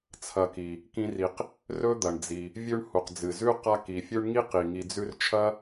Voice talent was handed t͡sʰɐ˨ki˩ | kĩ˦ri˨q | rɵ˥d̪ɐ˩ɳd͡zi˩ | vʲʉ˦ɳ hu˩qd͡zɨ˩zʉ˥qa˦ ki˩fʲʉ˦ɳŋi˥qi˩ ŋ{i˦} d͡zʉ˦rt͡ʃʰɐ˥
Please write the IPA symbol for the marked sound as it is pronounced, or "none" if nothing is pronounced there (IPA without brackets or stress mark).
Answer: i˨